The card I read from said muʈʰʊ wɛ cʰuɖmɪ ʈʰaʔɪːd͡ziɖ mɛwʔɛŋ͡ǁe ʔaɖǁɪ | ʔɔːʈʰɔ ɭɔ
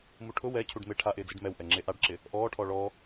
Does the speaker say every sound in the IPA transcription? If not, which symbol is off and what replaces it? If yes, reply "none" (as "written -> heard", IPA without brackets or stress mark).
none